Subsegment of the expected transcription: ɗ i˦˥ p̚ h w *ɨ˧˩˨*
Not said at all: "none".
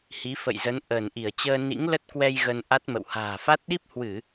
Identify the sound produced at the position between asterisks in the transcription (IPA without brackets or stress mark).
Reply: ɨ˧˩˨